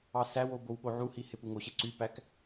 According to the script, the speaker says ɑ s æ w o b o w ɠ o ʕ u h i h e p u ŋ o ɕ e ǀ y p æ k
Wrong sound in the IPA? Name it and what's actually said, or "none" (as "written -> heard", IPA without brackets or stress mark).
none